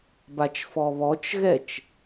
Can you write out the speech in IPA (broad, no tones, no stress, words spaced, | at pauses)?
bat͡ʃfɔβɔt͡ʃɣɛt͡ʃ